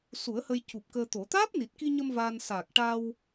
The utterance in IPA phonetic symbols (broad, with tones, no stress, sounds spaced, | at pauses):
s u˨˩˦ ə̯ h ə˧ j c u˨˩ p̚ k əː˧ t̪ o˨˩˦ t̪ aː˦˥ p̚ n i˨˩ t̚ k i˧ ɲ ə˧ m v aː˧ n s a˨˩ k̚ ʈ a˧ w